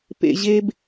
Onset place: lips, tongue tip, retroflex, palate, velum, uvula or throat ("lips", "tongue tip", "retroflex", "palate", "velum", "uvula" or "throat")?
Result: lips